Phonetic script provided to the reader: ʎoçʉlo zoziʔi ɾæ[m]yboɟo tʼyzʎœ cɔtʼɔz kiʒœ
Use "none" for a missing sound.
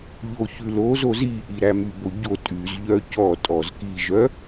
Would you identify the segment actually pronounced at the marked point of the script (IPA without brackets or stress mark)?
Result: m